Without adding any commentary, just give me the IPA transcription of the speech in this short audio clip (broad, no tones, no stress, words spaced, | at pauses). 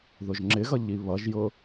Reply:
ðʊʒŋ͡ǁɪɣʌ ʎiβʌʒjʊ